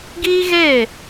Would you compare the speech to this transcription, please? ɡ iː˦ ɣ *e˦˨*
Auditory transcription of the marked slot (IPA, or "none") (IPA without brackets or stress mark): e˦˨